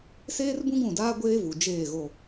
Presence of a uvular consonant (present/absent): absent